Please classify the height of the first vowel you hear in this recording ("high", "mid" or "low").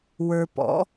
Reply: mid